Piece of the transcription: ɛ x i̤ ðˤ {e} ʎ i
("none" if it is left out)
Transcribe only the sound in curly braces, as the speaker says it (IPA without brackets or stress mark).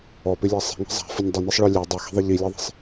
e